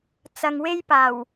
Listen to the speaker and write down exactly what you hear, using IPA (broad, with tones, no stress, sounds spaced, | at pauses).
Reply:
t͡s ɐ˨ ŋ w e˥ j p aː˨˩ w